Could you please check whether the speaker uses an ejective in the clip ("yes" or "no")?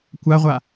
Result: no